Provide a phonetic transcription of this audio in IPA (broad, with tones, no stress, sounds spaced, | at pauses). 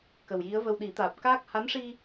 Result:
k ə˨˩ w j i˧˥ ə̯ v ə˧ w ɗ i˨˩˦ t̪ aː˨˩ p̚ k aː˦˥ k̚ h a˧˥ n ʂ i˧